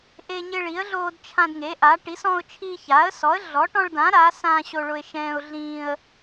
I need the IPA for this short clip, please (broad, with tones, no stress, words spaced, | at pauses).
ʔe˦ɲɪ˦ɭi˨˥ə̯ɮoː˦d t͡ʃʰã˦dŋe˨˥ʔa˨˥ ʈi˨˥sɔ̃˦ʊ̯t͡ʃʰi˦ ça˨˥ə̯ sɔ˨˥ə̯ɮɔ˨˥ʈɔ̃˦ɭdã˨˥ ɾa˨˥ sã˦ ɕo˦ɭʊ˦ɪ̯ʃɛ̃ː˦ʊ̯ɮĩː˦ə̯